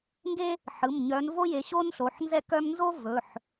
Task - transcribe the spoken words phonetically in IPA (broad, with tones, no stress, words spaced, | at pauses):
ŋɡe˥ | ħɯ˩˧˩mɲœ˨˦n vo˥je˨˦ ɕo˥nɬo˩˧˩ħ nzɛ˥ kœ˥m nzo˥ vɵ˩˧˩ħ